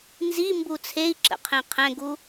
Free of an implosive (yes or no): yes